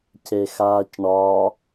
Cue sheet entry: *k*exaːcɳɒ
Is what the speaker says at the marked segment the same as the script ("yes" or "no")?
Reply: no